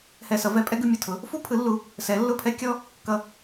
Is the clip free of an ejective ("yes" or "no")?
no